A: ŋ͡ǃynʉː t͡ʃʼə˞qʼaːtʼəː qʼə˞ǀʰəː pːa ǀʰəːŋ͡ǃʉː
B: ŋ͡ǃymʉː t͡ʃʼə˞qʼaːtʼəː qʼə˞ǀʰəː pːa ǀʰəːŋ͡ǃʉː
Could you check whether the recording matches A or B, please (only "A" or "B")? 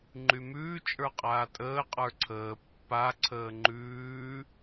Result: B